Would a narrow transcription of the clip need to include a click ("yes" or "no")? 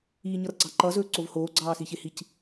yes